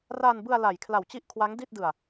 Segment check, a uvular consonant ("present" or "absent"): absent